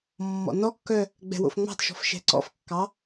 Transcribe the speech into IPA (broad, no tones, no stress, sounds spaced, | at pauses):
mː ɔ̰ n ɔ kː œ | ɡ͡b ɛ̤ w o̰ f ŋ͡m ɑ̤ t ʃ ɔ̤ f ʃ ɛ̤ ǀ ɔ̰ f kː ɑ